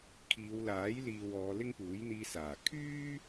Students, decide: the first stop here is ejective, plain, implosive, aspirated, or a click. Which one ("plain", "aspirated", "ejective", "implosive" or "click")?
aspirated